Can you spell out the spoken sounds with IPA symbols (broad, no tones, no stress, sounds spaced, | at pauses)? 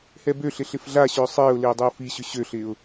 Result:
h ɛ b ø ɬ ɪ ɬ ɪ f ɮ a ɕ ʏː sˤ ɪː ʊ̯ l ɪː dˤ ɪ ʊ̯ f i ɕ ʏ ɕ ø ɬ ɪː ʊ̯